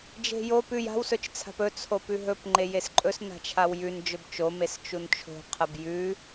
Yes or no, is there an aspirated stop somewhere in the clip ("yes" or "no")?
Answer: yes